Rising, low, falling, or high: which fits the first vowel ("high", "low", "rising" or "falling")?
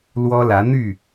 high